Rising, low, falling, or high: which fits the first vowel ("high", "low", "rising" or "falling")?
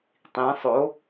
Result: rising